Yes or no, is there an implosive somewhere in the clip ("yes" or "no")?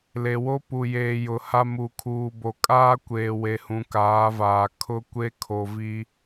no